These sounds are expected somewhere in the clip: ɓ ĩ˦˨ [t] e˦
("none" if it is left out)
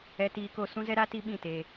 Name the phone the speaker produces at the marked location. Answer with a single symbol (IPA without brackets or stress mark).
t